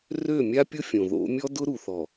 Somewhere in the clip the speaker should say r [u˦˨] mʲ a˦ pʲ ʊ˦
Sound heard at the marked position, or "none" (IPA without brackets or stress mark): ø˦˨